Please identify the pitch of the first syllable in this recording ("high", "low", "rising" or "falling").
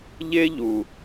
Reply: high